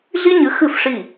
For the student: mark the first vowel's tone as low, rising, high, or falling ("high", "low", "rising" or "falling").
high